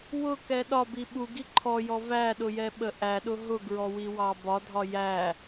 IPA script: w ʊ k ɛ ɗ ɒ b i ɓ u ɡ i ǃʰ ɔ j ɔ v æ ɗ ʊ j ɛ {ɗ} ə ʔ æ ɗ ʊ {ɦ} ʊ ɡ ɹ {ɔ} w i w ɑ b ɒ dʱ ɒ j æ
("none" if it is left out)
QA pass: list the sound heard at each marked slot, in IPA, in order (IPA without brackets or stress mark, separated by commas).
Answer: ɓ, ɦ, ɔ